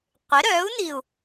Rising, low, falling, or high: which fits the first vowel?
rising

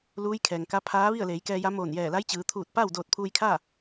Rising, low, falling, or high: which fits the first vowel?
rising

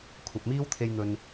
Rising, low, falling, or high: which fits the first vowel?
low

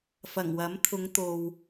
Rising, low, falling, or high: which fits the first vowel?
low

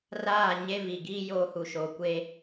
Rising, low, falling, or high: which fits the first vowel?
falling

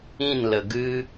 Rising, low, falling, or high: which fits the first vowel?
falling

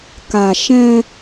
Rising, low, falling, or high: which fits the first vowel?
low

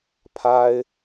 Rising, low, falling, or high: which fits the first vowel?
high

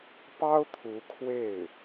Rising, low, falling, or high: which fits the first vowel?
high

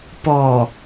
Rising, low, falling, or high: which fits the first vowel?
low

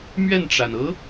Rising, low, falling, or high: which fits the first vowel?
falling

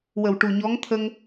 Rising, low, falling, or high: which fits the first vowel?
low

